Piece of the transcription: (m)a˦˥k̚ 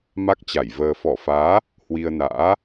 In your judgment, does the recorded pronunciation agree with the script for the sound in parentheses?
yes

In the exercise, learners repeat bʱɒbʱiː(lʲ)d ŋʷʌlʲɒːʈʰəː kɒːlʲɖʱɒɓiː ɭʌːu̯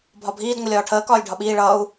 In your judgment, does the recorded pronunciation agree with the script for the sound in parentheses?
no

